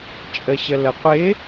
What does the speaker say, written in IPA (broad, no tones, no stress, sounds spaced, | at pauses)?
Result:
t͡ʃʼ ə ɕ ə l ə qʷ ɪ